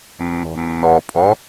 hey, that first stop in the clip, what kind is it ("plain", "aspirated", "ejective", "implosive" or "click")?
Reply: ejective